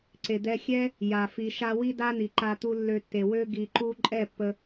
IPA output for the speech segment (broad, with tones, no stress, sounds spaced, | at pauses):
ǀ e˨ d̪ ɛ˧ xʲ ɛ˦ | j a˨ f i˨ ʃ a˧ w i˦ d a˦ n̪ i˨ ǃ a˧ t̪ u˧ lː ø˧ tː e˨ w ø˦ ɡ i˨ ǃ u˧ ǃʼ ɛ˦˨ pː ə˧